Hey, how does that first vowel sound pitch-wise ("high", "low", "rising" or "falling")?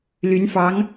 rising